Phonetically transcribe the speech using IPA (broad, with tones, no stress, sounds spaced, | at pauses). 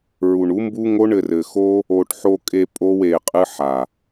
ɹ u˨ ɳ u˨˦ m b u˦ ŋ o˦ ɳ ɘ˧ r ɘ˨ x o˦ | o˨ ʈ ħ o˧ kʼ e˧ pʼ o˦ w e˧ qʼ ɨ˦ ħ a˨